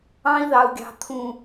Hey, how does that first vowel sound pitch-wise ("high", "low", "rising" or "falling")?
high